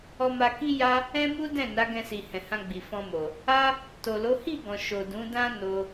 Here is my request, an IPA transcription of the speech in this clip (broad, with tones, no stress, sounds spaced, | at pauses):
ɔ˧ m a˧ k i˦ j a˦ | ɛ̃˦ m u˦ d ɛ̃˦˨ n a˨˦ ɡ ɛ̃˧ s i˨ h ɛ̃˨ h ã˧ ɡ͡b i˨ f ɔ̃˧ m o˨ | a˦ | t o˨ l o˨˦ h i˦˨ ɡ ɔ̃˨ ʃ o˨ d ũ˨˦ d ã˦ n o˧